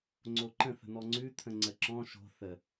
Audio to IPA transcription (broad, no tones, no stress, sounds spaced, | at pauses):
ŋ͡ǀ o ǃ ə̃ θ ə̤ n̪ ɔ ŋ͡ǀ ʉ t̪ʰ ə̃ ŋ͡ǀ ə ǁ ɔ̃ ʃ o̤ θ ə